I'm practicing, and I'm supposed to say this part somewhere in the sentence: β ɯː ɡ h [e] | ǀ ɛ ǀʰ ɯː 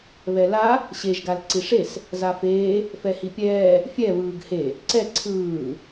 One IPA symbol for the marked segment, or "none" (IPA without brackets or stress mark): e